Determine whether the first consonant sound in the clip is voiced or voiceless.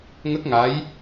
voiced